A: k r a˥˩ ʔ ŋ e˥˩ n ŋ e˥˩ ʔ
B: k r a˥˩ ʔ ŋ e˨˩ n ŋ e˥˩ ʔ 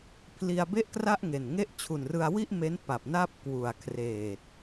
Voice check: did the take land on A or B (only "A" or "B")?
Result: B